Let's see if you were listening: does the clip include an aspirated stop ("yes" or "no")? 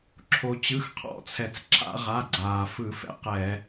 yes